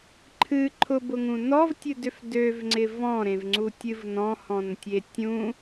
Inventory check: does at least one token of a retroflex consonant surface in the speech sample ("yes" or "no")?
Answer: no